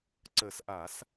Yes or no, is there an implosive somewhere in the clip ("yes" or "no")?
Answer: no